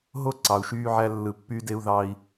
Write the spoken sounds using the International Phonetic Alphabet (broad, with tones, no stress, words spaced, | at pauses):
ɦo˦ ǀɑ˨u̯ʃyː˦ʕæ˦ lːɯ˨pːyː˦de˦u̯ ðɑ˦i̯